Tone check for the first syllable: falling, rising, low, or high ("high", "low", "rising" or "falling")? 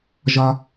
high